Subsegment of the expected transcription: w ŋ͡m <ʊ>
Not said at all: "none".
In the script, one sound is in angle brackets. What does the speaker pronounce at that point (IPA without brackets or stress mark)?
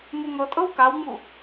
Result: u